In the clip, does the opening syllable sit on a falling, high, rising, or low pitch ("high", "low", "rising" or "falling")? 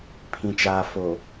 low